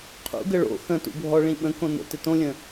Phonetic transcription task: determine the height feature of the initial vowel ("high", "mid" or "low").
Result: high